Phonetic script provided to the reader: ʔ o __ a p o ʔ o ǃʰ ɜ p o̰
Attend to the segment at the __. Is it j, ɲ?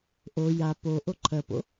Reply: j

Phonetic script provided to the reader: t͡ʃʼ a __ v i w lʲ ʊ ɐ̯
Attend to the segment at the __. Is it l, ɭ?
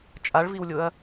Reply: ɭ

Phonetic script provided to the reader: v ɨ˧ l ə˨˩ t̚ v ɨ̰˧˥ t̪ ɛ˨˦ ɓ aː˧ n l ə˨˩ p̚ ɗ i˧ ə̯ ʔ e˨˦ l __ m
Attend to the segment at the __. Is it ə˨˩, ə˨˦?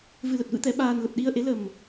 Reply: ə˨˩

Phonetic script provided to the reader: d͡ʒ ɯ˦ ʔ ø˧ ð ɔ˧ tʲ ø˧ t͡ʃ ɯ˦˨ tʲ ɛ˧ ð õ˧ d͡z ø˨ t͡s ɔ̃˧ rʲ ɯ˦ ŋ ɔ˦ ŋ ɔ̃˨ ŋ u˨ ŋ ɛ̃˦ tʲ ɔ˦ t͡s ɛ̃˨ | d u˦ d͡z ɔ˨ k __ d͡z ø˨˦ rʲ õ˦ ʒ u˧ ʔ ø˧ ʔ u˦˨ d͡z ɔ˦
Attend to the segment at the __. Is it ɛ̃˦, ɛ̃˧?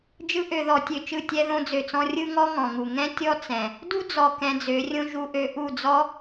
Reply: ɛ̃˧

